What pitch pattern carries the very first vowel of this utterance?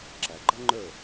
low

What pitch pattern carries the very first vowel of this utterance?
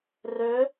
rising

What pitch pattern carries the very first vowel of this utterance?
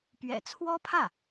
low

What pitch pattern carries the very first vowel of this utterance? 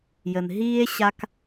low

